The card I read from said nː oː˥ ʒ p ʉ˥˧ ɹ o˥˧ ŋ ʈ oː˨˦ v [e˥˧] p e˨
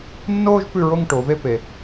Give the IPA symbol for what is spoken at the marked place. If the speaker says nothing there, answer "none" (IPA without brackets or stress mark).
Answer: e˥˧